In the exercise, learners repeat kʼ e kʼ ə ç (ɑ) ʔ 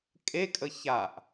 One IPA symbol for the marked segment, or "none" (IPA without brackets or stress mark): a